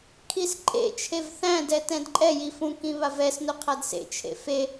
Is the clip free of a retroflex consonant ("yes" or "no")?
yes